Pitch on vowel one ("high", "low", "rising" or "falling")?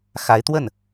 rising